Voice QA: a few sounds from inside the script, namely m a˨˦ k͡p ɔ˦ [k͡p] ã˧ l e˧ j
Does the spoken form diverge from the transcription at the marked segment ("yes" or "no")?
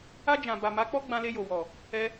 yes